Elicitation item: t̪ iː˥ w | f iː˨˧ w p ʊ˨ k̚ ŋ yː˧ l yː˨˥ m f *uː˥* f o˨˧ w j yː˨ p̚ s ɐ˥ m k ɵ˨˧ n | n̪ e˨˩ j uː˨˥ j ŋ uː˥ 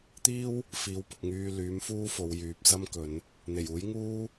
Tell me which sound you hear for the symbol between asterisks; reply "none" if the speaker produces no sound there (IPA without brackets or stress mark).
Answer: uː˥